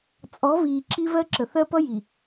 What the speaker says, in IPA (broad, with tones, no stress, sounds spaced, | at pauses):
t͡sʼ ɔ˨˦ v iː˨ ǁ i˦ v ɜ˦ ǁ ə˨ θ ɜ˦ p ʌ˦ j i˨